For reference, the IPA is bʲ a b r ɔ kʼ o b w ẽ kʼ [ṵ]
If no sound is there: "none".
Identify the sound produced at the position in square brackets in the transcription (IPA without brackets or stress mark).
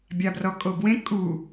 u